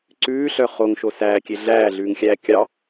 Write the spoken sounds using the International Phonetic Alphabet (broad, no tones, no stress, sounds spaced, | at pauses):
ǀ ʉː ɬ œ χ o ŋ ʃ o s æː kʲ e ɮ æː ɮ ʉː ŋ xʲ æː kʲ ɑ